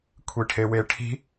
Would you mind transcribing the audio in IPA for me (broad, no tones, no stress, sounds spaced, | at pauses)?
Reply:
kʷʰ i ʈʰ e w e ʈʰ i̤